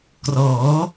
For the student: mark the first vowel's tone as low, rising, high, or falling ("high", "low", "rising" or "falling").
rising